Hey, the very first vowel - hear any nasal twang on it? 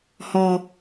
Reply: no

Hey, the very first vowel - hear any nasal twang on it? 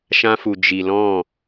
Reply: yes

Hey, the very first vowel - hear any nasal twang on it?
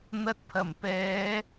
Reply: no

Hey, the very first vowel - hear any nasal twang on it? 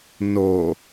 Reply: no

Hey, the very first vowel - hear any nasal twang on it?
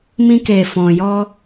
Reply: yes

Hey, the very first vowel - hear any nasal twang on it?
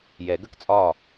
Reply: no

